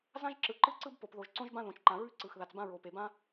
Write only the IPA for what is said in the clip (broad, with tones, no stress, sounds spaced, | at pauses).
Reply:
z ã˥ ʒ ǁ ɯ˩ ǃ ɯ˥ ǀ ɯ˥ b p o˩ p ð o˩ ʒ ǀ õ˥ ʒ b ã˥ ð õ˩ t͡ʃ ǃ ã˩ ɹ ʉ˥ ǀ ɯ˩ x ð a˩ t͡s b ã˥ ɹ o˩ p e˩ b ã˥